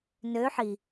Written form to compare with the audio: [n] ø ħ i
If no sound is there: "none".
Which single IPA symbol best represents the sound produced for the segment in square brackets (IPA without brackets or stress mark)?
n